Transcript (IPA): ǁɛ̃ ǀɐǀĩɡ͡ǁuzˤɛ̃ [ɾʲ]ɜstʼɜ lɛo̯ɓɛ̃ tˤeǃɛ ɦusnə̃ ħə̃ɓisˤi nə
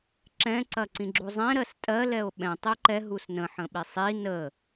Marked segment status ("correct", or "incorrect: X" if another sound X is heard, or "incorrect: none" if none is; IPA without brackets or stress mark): incorrect: ɾ